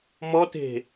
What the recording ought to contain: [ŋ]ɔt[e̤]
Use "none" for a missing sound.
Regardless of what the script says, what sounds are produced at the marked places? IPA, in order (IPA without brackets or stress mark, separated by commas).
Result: m, e̤